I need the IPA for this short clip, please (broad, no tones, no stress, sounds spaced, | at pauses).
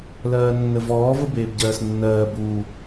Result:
l ɜː nː ə v ɔː v ə b eː b ɟ ɜː s nː ɜː b uː